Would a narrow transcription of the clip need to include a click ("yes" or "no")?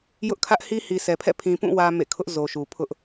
no